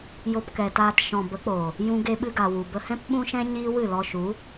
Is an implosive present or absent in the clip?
present